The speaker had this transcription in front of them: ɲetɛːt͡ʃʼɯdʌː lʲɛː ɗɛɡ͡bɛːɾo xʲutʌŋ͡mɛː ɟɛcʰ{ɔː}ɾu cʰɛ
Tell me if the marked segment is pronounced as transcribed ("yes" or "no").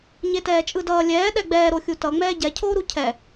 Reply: no